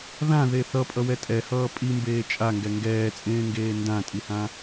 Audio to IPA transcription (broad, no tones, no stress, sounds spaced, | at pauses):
ð ã ð e θ ʌ pʼ ʌ w ɛ tʼ ɛ h ʌː pʼ i m b eː t͡ʃʼ a ŋ ɡ ɛ ŋ ɡ ɛː t͡sʼ ẽː ŋ ɡ eː n d ã tʼ i h ã